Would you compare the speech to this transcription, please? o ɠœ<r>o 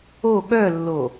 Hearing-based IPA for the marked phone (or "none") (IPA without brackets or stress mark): lː